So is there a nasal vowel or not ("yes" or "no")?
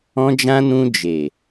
yes